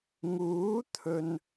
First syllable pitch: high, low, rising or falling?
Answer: rising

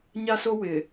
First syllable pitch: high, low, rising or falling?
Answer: high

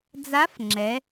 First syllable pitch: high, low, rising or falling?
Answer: rising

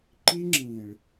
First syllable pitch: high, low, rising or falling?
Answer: high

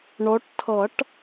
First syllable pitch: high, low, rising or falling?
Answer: rising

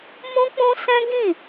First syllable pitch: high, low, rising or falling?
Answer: high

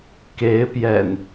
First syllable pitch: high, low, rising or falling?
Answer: rising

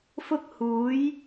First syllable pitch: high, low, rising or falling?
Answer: high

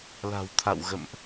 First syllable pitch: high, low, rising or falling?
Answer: low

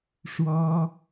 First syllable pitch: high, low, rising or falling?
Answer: high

